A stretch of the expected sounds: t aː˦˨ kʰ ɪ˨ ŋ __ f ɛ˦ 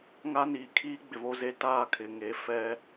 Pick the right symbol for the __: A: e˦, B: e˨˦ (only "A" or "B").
B